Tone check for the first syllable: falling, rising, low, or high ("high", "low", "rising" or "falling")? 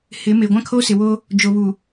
rising